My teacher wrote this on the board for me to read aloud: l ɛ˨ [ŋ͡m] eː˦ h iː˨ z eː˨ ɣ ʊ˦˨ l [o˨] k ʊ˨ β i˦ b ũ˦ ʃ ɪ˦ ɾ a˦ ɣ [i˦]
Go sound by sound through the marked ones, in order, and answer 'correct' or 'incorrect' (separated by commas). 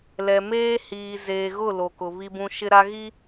incorrect, correct, correct